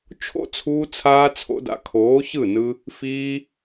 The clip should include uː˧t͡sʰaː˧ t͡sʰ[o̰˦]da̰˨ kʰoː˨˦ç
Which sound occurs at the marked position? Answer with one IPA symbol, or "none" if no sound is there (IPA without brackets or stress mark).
o̰˧